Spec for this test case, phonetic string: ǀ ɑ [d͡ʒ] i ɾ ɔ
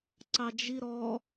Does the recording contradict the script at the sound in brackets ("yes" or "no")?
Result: no